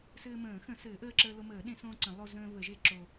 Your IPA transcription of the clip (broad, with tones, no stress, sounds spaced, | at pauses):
s ɘː˧ m ə̃ː˨˩˦ x ə̃˨˩˦ s ɘː˨˩˦ ʔ əː˧ ǁ əː˧ l o˧ m əː˨˩˦ ɗ ẽ˨˩˦ s õː˧ ǀ ə̃˨˩˦ lˠ o˧ z ə̃ː˧ β ə˨˩˦ ʒ e˧ ǁ o˧